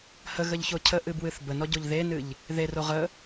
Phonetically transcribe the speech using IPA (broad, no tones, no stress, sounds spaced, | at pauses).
h ə ɣ ə ʎ ç o cʰ ə ʔ ɨ b w ɨ θ b ə n ɔ ɟ o ʎ ð e n ɨ ʎ | ð e r o ʁ ə